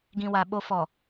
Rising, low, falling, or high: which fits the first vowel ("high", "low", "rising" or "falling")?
low